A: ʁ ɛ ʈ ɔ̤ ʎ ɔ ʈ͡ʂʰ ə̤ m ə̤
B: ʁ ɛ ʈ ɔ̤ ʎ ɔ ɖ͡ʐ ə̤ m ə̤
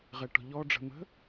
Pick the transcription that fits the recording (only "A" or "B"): B